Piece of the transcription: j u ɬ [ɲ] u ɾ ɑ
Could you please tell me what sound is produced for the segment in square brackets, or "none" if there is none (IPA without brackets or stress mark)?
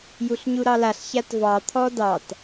ɲ